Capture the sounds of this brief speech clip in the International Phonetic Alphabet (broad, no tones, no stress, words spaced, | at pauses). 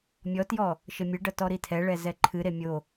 mʲɔtjɔ | ʃɘmʲɨɖɐ tɔɾitʰɛɭɛ zɛǃʰɨɾe mʲo